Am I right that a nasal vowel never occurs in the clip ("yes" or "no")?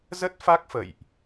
yes